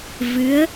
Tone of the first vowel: rising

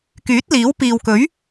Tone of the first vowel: rising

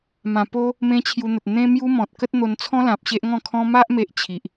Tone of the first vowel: low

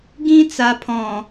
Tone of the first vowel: high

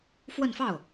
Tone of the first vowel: falling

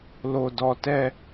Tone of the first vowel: low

